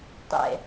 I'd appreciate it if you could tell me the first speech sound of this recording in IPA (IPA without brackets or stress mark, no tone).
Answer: tˤ